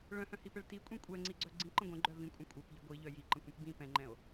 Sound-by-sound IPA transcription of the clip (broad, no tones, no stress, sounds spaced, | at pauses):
ɭ œ̃ h œ̃ h i p ɛ ɭ t i kʷʼ ĩ kʷʼ ɛ ŋ͡ǀ i ɡ͡ǀ œ ɡ͡ǀ ĩ ǃ ə̃ ɡʷ ɛ̃ ɡ͡ǃ œ v ĩ kʷʼ ə̃ kʷʼ ɛ p ʎ ə ɡʷ i ʎ œ j i ǃ ə̃ kʷ ĩ p b ĩ p ɛ̃ ŋ͡ǃ ɛ̃ o̯